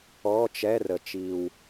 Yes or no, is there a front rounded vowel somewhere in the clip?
no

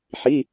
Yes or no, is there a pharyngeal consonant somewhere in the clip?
yes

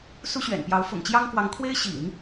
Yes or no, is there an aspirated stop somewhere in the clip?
yes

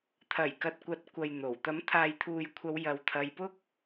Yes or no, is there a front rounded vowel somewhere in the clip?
no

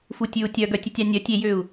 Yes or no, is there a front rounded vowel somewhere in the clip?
yes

